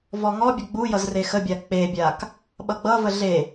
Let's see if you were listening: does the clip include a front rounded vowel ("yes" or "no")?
no